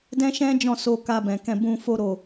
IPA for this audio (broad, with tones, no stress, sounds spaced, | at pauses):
d ɛ̃˦ ʃ ɛ̃˦ d͡ʒ ɔ̃˦˨ s o˧ k a˧ b ɛ̃˨ k ɛ̃˧ b ũ˧ f o˧ ɾ o˨